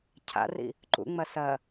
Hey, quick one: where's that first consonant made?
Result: palate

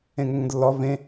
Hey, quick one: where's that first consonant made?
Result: velum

